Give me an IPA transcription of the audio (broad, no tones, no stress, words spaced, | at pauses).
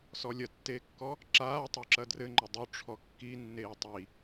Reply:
sɔlʲɐtːeːkːɔ | ǁaː tˤoǁɐdrɘ ŋ͡ǃɘdˤo ʈ͡ʂʰɔkːinːeː tˤi